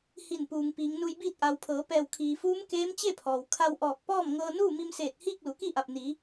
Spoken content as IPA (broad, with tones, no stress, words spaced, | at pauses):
hi˧˩npuː˩ŋ piː˩˧ŋnu˧jbiː˥˨t̚ ʔa˩wpʰɤː˩˧pɛː˧˩w kʰiː˩fuː˧˥mkeː˧˥m t͡ɕe˥˨pʰɔː˩w kʰa˧wʔɔː˧˩k̚pɔː˥˨m ŋɤː˧nuː˥˨ mi˧mseː˧˩t̚ hiː˥˨k̚lu˩˧ki˥˨ʔa˧˩p̚ ni˩˧